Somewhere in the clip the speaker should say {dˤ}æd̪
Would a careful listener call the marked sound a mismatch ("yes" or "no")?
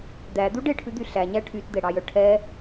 yes